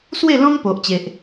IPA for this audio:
swe˥˧ lɔ̃˦ŋpo˨ʔt͡ɕe˨ʔ

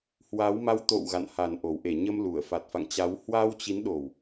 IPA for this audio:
hwa˨˦wma˧w t̪o̰˧˨w ɣa̰˧˨nha˨˩nʔo˨˩w ʔe˧˩ ɲə˧mlu˧˩ə̯ fa˨˩t̚fa̰˧˨ŋ t͡ɕa˨˦w hwa˧wt͡ɕi˨˦n ɗo˨˩w

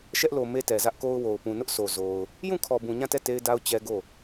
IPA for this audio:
ʃɛ˦ʔlo˨ me˦tɛ˨zä˦ʔko˦ʊ̯ wo˨ʊ̯pũ˨nʊ˦ʔso˨ zo˨ʊ̯ | jũ˦˨kʰɔ˨ bũ˨ɲã˦˨tɛ˦˨ te˦ɪ̯da˦ʊ̯ t͡ɕɛ˦ɡo˦˨

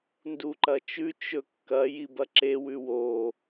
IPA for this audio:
nduǃɐt͡ʃʉ t͡ʃɵkːɐ jibɐǁe wʉwo

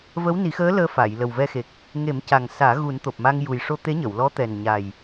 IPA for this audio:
vəː˧˥wni˨˩˦xəː˧˥ ləː˧fa˨˩˨j lə˨˩wvɛ˧xe˨˩k̚ | ŋe˨˩˦mca˨˩ŋ saː˨˩˦ ɣu˨˩˦nt̪o˨˩p̚ma˧ŋ ju˨˩j ʂo˧t̪e˧˥ɲə˨˩˨wlɔ˧˥ t̪ɛ˨˩nɲa˨˩j

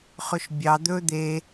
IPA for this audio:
χɵʃbʲɑ d̪ɵ d̪e

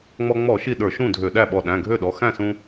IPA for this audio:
ŋ͡mɔ˧ ŋ͡mɔ˧˩˧ ʃi˧˩ ɗə˞˧˩˧ʃũ˥˩dʱø˧˩˧ ɗæ˥˩ɓɔ˧˩ ɗæ̃˩˧˩ɡʱø˥˩ɗɔ˩˧˩ xæ̃˥˩sũ˧

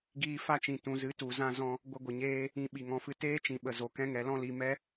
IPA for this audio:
ɡiː˧ fa˧t͡ʃĩ˨ tũ˨zɨ˨˦ tu˨zã˧ zɔ̃˧ | ɡʷə˧ɡʷə˨ɲeː˦ | ĩ˧ ɓi˨ ŋɔ̃˨fɨ˧ teː˦t͡ʃĩ˨ ɓə˨zo˨ kɛ̃˧ŋɛ˨lɔ̃˧li˨ mɛ˦

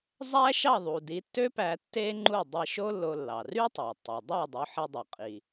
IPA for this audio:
zˤæ˥ ʃɑ˥˩ðˤu˩ di˩˥tːø˥pæ˧ tːe˥ŋ͡ǃu˥˩ dˤi˧ʃo˥ lːo˧lːɑ˩ ry˥tˤe˩tˤu˩ dˤɑ˥˩dˤo˩˥ħi˧ dˤo˩qʼi˩

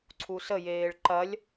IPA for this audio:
ǀʰusəjeːɭ ǃɐlʲ

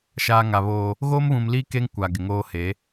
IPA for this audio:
ʃaː˨ ŋa˨βoː˦ | ɣoː˦mβũ˨mliː˦ ke˦ŋkʷa˨ ɡɪ˨ŋoː˦ he˨˦

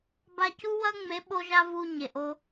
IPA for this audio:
ba˧cu˦wɐ˦ ŋ͡me˨˦ɓo˧ʒa˧ vu˧ ɲe˨ʔo˧

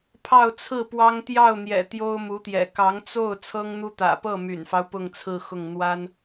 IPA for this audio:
pʰɑ˥˧ʊ̯t͡sʰɹ̩˥˩pwɑ˥ŋ t̪jɑ˥˩ʊ̯n̪jɛ̰˨˩ t̪jo˥ʊ̯mu˧˥t̪jɛ̰˨˩ kɑ˧˥ŋt͡so˥˩ʊ̯ t͡sʰɤ˥ŋn̪u˥ t̪ä̰˨˩pɤ˥˩my̰˨˩nfɑ˦ʊ̯ pʊ˥˧ŋt͡sʰɹ̩˥˧xʊ˥˩ŋ n̪wa˥n

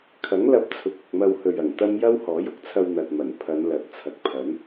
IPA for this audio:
kʰɐ˨˥ŋ lɐ˧p̚t͡sʰʊ˨k̚ ʊ˨k̚mɐ˧whɵ˨ɥ ɐ˨˩ŋt̪ɐ˥m jɐ˥whɔː˨˥jʊ˨k̚t͡sʰɐ˧w n̪ɐ˨t̚mɐ˨˩n pʰɐ˨˧n lɐ˨˥t̚ t͡sʰɐ˨k̚pʰɐ˨˥n

